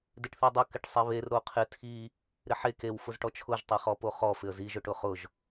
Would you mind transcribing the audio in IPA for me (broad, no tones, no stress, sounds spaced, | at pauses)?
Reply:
d ɪ ʈ θ i dˤ ʊ k ɪ ʈ sˤ e β e r ɾ o qʰ ɪ tʰ i | ɾ ɪ ħ e k e w f ʊ z ʈ ɔ t͡ʃʰ ʊ ʒ tˤ e χ ɔ p o χ ɔ f ɪ ə̯ z i ʒ ʊ ʈ ʊ χ ʊ ʒ